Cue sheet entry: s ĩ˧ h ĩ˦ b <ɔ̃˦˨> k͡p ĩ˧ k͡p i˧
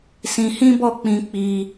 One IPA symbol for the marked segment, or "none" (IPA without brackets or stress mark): ɔ˦˨